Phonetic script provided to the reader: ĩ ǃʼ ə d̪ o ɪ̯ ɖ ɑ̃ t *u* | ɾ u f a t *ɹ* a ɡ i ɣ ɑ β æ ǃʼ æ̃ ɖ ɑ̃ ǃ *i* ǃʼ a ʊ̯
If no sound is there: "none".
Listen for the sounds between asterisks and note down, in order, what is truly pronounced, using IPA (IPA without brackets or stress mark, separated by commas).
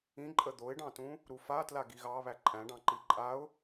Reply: ũ, l, i